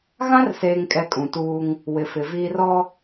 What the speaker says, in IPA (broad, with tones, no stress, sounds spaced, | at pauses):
ɣ ã˦ r s eː˨ ŋ kʼ ɛ˨ kʼ ũ˨ t uː˦ ŋ | w ɪ˨ f ɪ˨ v iː˦ r ɔ˦